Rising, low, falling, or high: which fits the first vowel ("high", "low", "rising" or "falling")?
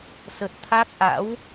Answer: low